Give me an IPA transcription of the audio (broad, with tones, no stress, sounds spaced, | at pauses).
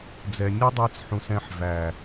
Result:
d͡z ɛ˨ nʲ ʌ˦ dˤ ɛ˧ t͡s ħ ũ˨ s ɛ̃˧ ħ v æ˨